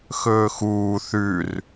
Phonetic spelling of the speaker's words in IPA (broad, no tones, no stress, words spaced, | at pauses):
xɵːxuː θʉr